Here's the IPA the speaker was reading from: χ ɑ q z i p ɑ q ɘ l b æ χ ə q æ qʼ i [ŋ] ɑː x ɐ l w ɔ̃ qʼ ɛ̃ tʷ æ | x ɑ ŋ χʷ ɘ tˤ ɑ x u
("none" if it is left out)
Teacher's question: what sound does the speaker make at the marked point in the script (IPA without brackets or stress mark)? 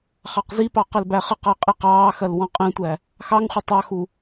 q